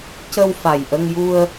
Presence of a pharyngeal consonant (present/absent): absent